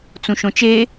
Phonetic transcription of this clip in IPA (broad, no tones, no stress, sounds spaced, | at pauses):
t͡s ũ ʃ õ t͡ʃ e